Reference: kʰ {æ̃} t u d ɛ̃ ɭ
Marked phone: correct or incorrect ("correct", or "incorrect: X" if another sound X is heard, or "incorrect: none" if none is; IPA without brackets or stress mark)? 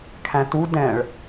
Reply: correct